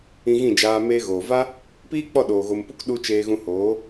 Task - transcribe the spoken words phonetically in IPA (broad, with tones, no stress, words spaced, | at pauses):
ĩ˧ɣĩ˦˨d͡ʒaː˧ meː˧ɣoː˨va˦ | piː˦k͡pɔ˦˨ɗoː˨ ɣo˨mpu˧k ɗu˧ t͡ʃeː˧ɣũ˧hoː˨˦